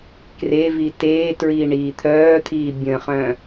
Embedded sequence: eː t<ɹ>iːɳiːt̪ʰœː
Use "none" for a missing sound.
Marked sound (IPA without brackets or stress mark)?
ɹ